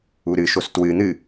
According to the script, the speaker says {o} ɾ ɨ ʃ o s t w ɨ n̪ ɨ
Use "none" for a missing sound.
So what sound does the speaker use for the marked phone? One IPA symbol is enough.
u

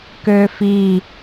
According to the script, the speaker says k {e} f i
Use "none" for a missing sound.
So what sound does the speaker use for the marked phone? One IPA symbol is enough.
ø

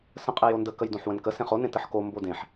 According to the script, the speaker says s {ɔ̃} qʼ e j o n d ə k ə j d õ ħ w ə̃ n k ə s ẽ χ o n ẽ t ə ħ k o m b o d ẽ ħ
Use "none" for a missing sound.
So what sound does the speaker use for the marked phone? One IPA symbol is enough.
ə̃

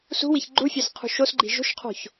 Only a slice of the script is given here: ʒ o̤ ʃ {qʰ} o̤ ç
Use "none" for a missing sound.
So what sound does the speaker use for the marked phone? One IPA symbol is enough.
qʰ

